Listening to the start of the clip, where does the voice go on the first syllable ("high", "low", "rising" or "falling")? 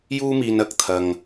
high